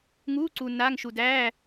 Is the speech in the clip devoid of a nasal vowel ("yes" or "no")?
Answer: yes